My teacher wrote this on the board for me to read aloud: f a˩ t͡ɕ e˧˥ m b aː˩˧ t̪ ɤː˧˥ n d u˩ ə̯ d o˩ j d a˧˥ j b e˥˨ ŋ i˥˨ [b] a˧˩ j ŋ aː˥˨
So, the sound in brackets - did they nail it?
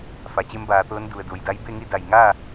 no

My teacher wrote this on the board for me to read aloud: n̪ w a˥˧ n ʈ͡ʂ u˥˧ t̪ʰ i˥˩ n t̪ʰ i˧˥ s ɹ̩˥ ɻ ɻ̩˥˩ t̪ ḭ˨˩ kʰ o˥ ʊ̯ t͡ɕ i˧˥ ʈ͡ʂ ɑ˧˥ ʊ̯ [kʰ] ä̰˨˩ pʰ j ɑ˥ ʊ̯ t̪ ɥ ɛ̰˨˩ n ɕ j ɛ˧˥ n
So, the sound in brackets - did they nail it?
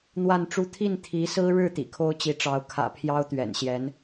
yes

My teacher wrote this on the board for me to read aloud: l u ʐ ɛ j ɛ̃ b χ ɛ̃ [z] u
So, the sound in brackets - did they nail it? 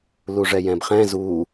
yes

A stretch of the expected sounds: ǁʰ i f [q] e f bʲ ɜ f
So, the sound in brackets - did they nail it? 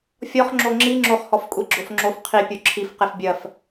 yes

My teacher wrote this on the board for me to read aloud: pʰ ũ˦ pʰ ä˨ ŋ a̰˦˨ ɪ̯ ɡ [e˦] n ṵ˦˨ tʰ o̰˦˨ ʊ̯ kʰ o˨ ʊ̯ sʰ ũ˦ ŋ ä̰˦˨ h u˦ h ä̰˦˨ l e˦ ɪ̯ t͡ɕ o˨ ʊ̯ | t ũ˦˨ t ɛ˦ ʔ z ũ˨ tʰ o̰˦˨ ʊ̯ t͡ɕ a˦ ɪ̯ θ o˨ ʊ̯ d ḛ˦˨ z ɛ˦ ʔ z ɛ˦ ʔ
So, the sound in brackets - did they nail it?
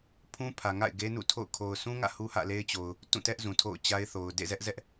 yes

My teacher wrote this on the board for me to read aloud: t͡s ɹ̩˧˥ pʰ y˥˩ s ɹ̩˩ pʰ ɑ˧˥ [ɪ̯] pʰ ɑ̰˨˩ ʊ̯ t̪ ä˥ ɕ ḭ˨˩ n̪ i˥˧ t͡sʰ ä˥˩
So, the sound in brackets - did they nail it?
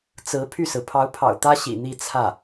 no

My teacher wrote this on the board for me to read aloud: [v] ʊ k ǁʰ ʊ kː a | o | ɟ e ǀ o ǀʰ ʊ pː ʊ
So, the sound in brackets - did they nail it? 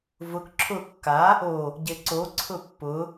yes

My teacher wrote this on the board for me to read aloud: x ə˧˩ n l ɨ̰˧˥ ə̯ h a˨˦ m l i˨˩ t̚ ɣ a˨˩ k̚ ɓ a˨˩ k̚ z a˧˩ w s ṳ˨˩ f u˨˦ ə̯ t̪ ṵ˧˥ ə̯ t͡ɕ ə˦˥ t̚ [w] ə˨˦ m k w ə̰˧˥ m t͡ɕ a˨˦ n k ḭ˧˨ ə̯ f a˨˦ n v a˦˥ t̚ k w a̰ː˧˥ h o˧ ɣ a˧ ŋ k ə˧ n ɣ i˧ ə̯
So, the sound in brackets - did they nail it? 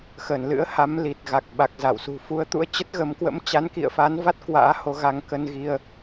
no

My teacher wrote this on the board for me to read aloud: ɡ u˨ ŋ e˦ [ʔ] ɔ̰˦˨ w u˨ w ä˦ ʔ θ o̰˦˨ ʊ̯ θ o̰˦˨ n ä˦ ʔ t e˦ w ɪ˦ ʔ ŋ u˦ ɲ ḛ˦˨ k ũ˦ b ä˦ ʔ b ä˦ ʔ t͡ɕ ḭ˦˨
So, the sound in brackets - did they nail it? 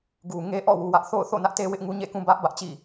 yes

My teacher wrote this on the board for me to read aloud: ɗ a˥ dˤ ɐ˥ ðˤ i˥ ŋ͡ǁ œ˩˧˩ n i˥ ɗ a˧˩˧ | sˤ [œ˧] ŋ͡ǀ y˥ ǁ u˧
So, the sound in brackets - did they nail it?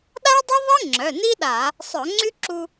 no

